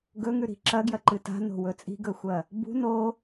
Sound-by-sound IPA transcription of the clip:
ɡɵŋʉɾi̤ ǁɐɡjɐǃɨ ta̤no̤wɵ t͡sʼi̤ɡɵxʷɐ | bṳ no

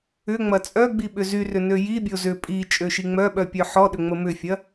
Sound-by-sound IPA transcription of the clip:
ʏŋ͡mɐ t͡sʼœɡ͡bi ɓʏzyrʏ nøjibʲo zʏ pʼi t͡ʃʼøʃiŋ͡mœɓœ pʲœħɔɗʏ ŋ͡məmʏfʲɐ

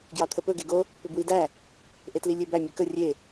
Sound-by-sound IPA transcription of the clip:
ɡjɑt̪ʰəpɵ ɡeɡo | pʏbwidæ | ʔetlilʲebæ mʲɵkə rʲe

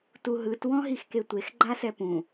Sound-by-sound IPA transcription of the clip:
tuɦɯt wɔ̃ɦixketʷex ɡ͡ǃasɛpũ

